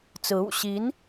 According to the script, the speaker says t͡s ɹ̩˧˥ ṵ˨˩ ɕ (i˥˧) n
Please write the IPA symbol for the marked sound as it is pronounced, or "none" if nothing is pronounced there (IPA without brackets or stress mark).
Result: i˧˥